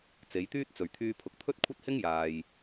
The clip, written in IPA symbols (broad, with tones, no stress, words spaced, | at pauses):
t͡se˨˧jt̪yː˥t̚ t͡sɵ˨˩ɥt̪ʰyː˧pʰʊ˨k̚t̪ʰɵ˥t̚ kʷʰɐ˥t̚hɪ˥ŋ jaː˨j